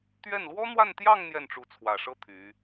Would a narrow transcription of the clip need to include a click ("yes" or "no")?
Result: no